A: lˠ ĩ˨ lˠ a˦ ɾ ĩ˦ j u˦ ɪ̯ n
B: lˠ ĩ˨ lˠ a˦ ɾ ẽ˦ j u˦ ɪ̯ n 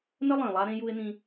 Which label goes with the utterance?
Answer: B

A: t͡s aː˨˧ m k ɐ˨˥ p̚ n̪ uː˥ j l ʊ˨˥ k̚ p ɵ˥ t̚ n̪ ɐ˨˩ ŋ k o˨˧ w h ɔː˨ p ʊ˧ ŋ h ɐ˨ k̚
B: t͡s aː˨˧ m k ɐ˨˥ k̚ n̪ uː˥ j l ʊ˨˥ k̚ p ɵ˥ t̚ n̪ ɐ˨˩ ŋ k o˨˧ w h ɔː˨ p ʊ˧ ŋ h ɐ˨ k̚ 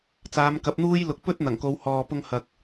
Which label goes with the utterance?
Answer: A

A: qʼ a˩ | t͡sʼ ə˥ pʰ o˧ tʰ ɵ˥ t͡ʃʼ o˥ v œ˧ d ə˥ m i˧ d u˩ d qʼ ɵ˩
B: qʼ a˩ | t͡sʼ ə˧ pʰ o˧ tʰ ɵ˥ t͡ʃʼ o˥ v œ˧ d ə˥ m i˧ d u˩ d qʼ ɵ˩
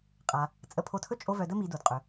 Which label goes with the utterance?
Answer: B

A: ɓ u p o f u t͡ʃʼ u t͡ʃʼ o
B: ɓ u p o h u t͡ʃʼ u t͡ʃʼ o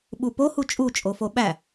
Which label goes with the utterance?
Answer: B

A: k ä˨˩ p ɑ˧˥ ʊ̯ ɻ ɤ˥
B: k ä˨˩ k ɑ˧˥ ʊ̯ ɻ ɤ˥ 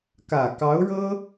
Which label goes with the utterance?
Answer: B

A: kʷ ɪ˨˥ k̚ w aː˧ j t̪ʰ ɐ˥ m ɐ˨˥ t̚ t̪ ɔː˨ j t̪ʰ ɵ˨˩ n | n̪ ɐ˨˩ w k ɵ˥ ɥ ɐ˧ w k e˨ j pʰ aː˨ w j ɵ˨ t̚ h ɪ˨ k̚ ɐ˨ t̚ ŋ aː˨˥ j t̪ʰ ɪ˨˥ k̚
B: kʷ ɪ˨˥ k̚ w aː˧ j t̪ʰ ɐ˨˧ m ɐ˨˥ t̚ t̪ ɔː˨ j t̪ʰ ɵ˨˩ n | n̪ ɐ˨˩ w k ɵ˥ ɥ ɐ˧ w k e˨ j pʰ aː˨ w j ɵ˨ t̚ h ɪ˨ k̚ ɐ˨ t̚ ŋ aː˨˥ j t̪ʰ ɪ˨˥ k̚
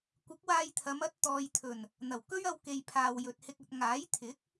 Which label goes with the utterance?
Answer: B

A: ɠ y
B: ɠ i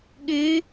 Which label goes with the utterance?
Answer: A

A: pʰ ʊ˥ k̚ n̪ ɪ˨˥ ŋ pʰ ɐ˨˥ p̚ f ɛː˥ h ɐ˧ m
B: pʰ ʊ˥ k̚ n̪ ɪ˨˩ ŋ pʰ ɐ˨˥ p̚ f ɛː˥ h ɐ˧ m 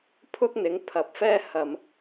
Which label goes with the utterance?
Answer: A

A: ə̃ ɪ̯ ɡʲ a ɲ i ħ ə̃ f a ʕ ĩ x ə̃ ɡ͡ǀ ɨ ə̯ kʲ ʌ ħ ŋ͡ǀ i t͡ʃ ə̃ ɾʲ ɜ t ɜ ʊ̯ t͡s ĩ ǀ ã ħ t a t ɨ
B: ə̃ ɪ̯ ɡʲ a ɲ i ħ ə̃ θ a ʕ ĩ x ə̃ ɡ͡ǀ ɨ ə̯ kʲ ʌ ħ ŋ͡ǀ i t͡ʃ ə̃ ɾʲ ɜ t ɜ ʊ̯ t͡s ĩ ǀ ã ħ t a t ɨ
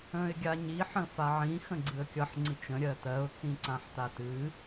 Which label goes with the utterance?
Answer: A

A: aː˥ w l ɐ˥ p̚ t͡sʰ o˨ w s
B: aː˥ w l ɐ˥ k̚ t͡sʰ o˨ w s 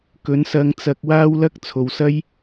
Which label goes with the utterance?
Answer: B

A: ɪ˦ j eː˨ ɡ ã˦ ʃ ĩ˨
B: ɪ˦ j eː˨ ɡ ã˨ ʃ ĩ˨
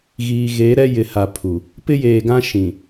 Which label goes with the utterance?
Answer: A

